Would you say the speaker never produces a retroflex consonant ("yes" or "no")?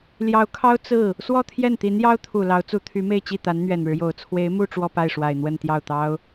no